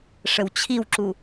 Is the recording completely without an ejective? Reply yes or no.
yes